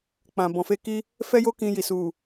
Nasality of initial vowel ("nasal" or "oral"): nasal